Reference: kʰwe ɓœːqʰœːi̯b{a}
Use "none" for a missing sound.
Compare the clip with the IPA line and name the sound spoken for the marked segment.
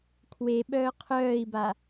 a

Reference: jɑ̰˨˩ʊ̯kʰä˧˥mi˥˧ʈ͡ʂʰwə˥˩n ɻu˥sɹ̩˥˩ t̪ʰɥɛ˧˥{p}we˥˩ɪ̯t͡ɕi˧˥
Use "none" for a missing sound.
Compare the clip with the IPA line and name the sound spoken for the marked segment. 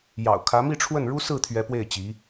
p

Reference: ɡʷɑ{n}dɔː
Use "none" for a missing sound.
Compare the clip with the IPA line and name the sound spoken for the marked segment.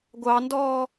n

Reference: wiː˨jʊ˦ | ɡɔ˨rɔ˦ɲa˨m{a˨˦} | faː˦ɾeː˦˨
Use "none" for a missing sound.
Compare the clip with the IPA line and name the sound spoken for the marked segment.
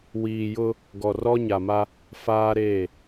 a˦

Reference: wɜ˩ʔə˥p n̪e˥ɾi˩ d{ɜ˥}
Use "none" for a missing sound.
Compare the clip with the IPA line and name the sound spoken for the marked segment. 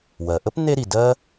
ɜ˥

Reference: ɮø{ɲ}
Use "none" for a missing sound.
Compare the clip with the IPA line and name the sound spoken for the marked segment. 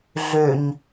ɲ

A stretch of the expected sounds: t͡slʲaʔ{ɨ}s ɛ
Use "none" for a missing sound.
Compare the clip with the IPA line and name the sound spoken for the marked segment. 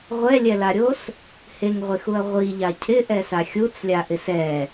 ɪ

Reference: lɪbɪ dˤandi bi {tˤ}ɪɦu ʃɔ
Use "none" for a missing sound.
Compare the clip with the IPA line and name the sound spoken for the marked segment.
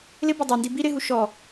ɾ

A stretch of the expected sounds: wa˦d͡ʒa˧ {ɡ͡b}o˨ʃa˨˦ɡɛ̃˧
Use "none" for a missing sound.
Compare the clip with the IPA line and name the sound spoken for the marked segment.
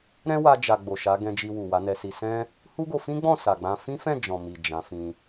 ɡ͡b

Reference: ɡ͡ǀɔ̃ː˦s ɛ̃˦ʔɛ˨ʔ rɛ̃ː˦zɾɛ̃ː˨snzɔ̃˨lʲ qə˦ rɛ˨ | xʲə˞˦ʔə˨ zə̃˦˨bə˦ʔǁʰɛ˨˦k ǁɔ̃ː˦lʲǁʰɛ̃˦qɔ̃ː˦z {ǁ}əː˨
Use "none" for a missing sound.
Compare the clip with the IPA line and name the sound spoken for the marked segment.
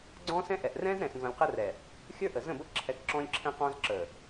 ǁ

